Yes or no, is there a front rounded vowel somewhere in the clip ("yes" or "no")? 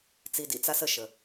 no